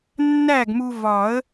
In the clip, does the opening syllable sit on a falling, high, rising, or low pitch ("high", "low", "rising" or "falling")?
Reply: falling